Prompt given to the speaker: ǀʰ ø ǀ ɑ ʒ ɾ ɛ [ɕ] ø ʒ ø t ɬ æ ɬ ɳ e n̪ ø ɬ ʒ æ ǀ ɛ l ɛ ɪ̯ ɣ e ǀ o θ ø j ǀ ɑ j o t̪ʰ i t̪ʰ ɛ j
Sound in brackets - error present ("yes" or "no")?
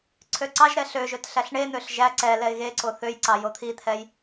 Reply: yes